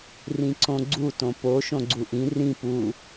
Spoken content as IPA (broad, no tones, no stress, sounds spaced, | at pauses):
r ĩ ǀ õ ɡ͡ǀ u t õ p o ʃ õ ɡ͡ǀ u ʔ ĩ r ĩ p u